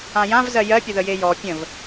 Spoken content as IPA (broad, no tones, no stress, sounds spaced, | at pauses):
ã j ã v z ɜ j ɜ pʲ ə ð ə j e j ɔ pʲ ə̃ v